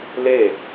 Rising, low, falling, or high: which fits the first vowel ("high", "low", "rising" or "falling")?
falling